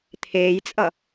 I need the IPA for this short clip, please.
t̪ʰ eː j t͡sʼ ʌ

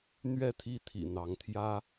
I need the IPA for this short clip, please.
n̪ ɥ ɛ˥˨ t̪ʰ i˥˨ t̪ʰ ḭ˨˩ n̪ ɑ˨˦ ŋ t̪ʰ j ä˦

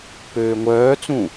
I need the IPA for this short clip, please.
p øː ŋʷ œː t͡s ũ

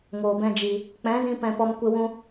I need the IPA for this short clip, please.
ŋ oː˨ b ɛ̃˧ d͡ʒ i˨ | k͡p ɛ̃˨˦ z ĩ˧ p ɛ̃˧ p ɔ˧ m kʷ e˧ w ũ˧

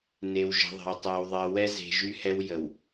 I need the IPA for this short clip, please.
n e˨ w ʒ ə̤˨˦ ðˤ ə̤˨ w tˤ ɜ˨ w ðˤ ɜ˨ w ɛ˦ z e̤˨ ʒ y˦ h ɛ˦ w j ə˨ w

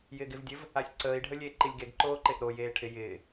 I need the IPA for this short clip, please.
j ɪː ɡ ɪ v dʲ ɘ v | a sʲ ǀ əː i̯ ɖʱ ə lʲ eː ǃ i lʲ ɡ e ɡ ǃ oː ǃ e ʔ ɾ o j eː ʈʰ ɪ j ɪː

